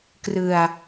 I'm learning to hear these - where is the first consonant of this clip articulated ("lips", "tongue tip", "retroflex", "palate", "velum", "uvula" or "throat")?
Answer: velum